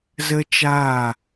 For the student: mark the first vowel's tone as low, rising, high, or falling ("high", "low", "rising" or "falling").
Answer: high